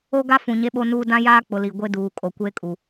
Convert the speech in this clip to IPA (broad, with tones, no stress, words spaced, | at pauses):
o˦ɡa˦ fũ˨ɲe˦ɓo˦nuː˦ dã˦jaː˦k͡pʊ˨ li˨ ɡʷe˦duː˨kʼo˨ kʷeː˦kʼu˨